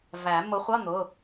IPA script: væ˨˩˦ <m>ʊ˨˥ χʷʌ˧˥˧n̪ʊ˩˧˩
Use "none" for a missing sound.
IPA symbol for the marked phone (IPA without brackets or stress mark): m